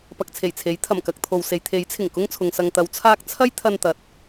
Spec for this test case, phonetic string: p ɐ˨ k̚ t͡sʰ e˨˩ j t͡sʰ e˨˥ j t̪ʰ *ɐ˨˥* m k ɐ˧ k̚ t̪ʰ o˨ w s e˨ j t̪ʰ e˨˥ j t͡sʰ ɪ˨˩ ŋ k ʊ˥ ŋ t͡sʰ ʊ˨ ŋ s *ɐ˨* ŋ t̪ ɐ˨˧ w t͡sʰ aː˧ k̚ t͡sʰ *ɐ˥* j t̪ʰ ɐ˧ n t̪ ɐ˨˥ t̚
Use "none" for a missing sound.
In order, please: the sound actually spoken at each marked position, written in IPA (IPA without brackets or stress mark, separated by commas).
ɐ˨˩, ɐ˨, ɐ˥